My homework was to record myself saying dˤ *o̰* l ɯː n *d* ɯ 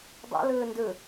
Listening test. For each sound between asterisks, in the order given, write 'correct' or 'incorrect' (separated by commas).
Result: correct, correct